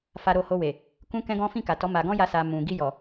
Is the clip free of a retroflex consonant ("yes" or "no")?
yes